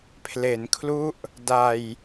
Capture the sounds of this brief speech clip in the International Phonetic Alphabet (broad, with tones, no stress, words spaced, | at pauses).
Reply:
pʰle˩˦nkʰlu˦˥ʔ | da˧j